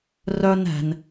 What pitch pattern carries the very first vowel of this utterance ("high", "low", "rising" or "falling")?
high